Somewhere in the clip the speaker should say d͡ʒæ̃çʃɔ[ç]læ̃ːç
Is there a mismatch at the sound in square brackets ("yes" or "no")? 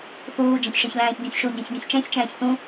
no